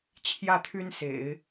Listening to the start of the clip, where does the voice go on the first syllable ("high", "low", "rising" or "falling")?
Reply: falling